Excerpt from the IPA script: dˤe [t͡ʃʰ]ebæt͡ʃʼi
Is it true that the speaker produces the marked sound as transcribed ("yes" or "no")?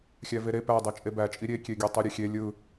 no